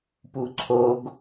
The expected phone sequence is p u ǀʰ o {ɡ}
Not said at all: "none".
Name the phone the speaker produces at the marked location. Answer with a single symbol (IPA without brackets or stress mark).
ɡ